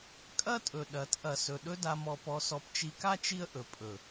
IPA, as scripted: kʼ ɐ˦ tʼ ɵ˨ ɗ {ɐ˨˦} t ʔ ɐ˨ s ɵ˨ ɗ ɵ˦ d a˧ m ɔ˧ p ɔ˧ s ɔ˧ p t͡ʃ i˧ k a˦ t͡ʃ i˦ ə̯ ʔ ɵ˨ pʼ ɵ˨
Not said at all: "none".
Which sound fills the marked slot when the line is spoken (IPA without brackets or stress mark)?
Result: ɐ˨˦